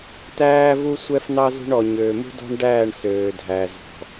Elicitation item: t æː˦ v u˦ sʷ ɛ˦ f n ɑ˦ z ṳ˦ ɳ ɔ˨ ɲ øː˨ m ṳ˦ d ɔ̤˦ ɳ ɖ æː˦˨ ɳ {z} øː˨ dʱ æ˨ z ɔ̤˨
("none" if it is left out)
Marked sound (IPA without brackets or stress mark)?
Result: s